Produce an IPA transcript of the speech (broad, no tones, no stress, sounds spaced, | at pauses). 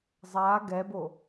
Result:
zˤ a ɡ ɛ b o